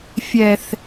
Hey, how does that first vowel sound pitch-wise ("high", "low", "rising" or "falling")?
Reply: low